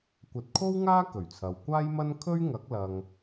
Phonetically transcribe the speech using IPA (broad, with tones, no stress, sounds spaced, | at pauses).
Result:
kʷ ɐ˨˥ t̚ kʰ o˥ w ŋ aː˥ k ɵ˨˩ ɥ t͡sʰ ɐ˨ w kʷ aː˥ j m ɐ˥ n kʰ ɵ˥ ɥ ŋ ɐ˨˥ k̚ l ɐ˨ ŋ